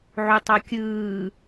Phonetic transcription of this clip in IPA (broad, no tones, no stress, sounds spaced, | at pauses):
ʕ u tˤ o kʲ ɯː